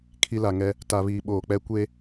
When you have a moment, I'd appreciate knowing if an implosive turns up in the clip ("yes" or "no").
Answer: yes